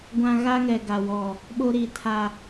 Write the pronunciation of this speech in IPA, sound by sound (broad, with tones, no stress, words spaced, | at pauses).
ɡʷã˦ ɣa˦ŋɛ˨ ɡa˨wɔ˨ | ɓo˦ɾi˨tʰa˨